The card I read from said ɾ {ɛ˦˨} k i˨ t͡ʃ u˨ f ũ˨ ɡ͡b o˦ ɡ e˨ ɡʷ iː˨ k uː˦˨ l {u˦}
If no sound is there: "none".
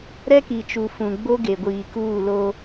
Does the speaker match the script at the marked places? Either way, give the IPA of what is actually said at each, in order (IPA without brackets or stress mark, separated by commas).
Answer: ɛ˦, o˦